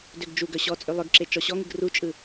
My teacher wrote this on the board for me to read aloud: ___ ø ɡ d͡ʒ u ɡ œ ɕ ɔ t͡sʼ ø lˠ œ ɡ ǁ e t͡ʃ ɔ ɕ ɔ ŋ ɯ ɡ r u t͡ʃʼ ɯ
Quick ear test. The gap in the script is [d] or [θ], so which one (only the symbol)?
d